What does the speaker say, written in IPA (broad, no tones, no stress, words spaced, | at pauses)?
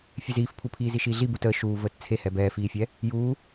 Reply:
fʲeziːfpʰupʰiː ziʃiːɮi butəː ʃuː vəːtt͡sʰehɛ bɛːfiːfʲɛ | juː